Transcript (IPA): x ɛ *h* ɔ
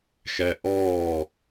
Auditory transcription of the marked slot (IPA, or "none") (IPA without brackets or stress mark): ʔ